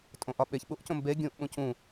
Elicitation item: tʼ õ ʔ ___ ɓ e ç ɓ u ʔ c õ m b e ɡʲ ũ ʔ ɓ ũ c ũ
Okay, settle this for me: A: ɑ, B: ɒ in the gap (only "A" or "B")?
B